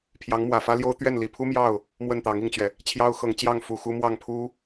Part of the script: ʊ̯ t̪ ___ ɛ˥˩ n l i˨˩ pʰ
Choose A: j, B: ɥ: B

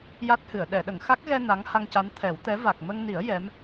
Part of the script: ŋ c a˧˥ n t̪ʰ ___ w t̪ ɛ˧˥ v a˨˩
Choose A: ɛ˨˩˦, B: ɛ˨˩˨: A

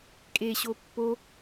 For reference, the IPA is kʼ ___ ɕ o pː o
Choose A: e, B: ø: A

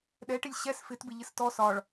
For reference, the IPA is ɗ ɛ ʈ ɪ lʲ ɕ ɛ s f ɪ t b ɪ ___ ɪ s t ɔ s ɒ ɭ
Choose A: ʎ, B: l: A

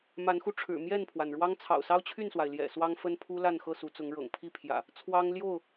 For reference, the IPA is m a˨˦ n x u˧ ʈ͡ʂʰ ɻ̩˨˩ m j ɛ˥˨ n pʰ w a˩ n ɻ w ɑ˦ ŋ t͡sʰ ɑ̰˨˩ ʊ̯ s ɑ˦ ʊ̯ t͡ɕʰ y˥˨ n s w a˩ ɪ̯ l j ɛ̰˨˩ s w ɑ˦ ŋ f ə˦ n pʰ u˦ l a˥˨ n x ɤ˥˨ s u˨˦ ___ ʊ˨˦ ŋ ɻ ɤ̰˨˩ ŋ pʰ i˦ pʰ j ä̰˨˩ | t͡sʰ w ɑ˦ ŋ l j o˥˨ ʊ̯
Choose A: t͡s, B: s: A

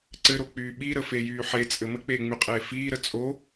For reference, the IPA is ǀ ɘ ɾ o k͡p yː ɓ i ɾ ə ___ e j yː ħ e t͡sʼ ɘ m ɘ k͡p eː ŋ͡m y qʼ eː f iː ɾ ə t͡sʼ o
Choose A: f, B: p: A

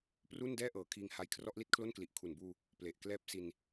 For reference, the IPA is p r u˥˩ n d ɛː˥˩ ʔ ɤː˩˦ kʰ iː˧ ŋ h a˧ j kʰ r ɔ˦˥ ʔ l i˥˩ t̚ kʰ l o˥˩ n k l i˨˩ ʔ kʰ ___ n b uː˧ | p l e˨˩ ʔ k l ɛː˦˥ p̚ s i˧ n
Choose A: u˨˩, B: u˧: A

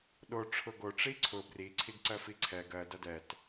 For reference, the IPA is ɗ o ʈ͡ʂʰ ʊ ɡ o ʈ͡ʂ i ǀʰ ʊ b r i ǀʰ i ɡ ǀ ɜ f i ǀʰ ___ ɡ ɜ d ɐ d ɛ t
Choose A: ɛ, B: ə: A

